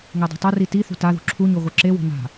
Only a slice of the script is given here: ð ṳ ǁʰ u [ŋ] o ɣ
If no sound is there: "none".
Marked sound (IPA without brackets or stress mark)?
ɲ